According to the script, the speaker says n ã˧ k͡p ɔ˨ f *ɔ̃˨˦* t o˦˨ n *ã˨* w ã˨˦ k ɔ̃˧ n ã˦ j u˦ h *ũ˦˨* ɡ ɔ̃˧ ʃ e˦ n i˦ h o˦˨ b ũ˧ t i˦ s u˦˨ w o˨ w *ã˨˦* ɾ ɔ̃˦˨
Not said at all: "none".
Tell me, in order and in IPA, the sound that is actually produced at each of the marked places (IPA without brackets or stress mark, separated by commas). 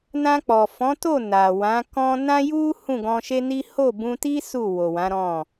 ɔ̃˨˦, a˨, ũ˦˨, ã˨˦